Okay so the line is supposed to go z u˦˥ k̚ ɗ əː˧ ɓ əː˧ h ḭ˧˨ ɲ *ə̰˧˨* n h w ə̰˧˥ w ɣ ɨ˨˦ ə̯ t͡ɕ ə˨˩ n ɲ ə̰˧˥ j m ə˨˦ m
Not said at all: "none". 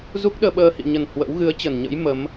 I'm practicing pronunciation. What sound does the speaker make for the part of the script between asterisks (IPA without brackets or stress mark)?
ə˨˩